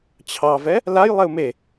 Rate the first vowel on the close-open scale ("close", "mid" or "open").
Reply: open